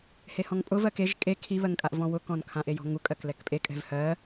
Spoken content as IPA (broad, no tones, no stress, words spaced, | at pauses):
hehɔ̃ŋpʼʊ vɜkeʒ kʼe kʰiβɜŋkʼaʔ vɔ̃wʊkɔ̃nkʰã ʔejɔ̤ŋu kʼɜklɛkpʼekʼɛ̤v hɜ